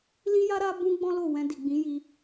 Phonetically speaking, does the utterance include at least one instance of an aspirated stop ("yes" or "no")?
no